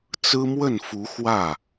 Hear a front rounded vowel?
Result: no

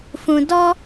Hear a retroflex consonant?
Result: no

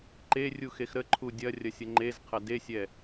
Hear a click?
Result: yes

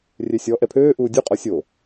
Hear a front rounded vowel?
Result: yes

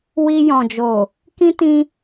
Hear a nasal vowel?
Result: yes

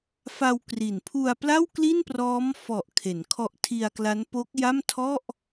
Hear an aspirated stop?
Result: yes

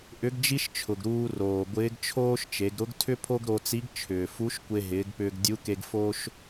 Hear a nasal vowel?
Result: no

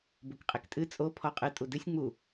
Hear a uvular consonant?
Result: yes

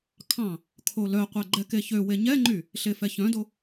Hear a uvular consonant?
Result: yes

